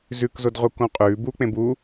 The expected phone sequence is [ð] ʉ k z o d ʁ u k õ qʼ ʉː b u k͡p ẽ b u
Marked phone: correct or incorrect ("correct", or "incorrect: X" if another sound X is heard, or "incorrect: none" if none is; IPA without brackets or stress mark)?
incorrect: z